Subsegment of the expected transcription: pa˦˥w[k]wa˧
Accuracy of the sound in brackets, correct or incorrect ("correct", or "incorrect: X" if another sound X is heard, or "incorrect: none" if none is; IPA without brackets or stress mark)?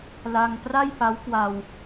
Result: correct